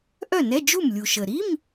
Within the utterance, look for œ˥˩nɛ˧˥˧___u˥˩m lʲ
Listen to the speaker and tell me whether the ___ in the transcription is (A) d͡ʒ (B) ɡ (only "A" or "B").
A